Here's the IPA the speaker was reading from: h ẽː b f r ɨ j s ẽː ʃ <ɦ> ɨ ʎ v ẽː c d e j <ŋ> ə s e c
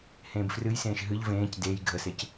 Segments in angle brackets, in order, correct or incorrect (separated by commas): correct, incorrect